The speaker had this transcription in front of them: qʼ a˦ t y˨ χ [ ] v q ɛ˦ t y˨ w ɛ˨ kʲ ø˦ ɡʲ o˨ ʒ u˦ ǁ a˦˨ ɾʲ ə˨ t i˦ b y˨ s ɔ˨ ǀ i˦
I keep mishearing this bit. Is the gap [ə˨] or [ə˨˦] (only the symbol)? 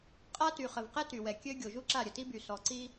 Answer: ə˨